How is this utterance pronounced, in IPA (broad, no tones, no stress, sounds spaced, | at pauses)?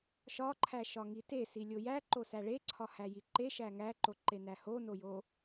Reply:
ʃ ɒ ǃʰ æ ʃ ɒ ŋ i t e s i lʲ o j æ ǃ o s æ ɭ e ǀʰ ɒ h æ j i ǃ e ʃ æ ŋ æ ǃ o ǃ e n æ h o n o j o